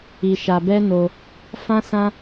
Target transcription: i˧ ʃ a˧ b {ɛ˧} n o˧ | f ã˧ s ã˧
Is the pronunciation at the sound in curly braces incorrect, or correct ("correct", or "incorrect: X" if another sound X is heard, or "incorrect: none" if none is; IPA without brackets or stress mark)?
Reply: incorrect: ɛ˦